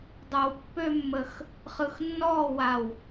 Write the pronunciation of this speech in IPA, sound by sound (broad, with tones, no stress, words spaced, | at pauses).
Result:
dˤə˞˧wpːø˥mːə˧x | χɯ˧xnːɔː˥˧wa˧˩w